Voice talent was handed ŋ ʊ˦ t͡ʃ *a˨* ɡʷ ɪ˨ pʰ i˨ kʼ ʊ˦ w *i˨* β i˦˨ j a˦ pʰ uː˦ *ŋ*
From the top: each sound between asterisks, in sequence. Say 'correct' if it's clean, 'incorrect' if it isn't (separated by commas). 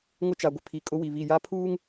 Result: correct, correct, correct